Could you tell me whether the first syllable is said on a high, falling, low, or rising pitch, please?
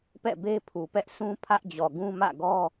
falling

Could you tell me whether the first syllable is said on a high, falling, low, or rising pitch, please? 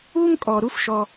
high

